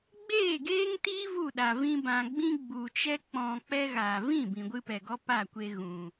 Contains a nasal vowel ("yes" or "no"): yes